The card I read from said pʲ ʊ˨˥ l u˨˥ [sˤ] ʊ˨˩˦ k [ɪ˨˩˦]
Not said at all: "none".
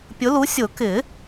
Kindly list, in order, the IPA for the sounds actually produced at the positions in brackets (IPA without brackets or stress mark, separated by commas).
sʲ, ɪ˨˩˦